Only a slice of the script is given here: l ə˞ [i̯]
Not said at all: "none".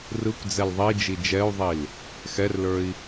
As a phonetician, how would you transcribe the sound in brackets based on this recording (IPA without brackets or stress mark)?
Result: i̯